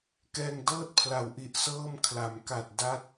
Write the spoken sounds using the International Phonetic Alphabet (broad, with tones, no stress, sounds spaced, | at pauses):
k ɛː˧ ŋ d ɤː˥˩ t̚ pʰ l a˨˩ w ʔ i˨˩ ʔ s ɤː˥˩ m kʰ l a˩˦ m k a˨˩ t̚ d a˥˩ t̚